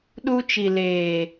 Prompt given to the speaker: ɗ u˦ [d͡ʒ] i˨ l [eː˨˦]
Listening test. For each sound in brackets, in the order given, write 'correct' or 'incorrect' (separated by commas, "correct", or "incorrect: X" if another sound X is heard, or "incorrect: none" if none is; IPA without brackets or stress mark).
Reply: incorrect: t͡ʃ, incorrect: eː˨